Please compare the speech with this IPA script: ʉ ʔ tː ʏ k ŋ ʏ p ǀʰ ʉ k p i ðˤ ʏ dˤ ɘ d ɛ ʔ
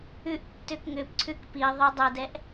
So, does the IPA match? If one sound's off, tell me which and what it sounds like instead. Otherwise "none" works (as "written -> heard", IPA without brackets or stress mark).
none